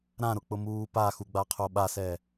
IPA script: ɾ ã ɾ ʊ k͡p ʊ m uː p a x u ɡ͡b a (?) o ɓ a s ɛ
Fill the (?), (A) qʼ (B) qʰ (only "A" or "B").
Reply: B